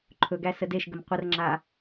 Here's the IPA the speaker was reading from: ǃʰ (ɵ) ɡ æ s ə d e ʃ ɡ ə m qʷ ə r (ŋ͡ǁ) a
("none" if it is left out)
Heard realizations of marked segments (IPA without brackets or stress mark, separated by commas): ɵ, ŋ͡ǁ